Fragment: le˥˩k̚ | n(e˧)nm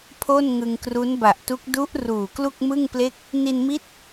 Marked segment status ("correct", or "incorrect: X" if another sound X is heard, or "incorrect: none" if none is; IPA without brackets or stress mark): incorrect: i˧